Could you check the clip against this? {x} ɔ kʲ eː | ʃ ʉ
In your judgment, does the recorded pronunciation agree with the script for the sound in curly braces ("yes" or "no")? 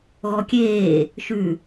no